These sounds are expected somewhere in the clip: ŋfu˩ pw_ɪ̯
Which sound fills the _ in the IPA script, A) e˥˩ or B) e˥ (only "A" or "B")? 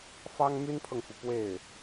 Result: A